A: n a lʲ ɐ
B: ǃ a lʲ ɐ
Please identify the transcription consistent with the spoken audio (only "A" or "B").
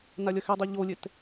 A